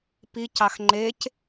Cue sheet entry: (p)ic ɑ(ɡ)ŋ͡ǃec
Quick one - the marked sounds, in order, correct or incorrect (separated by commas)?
correct, incorrect